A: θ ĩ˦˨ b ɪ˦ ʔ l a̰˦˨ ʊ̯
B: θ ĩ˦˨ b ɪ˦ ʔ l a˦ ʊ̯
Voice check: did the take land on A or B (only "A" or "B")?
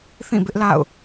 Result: A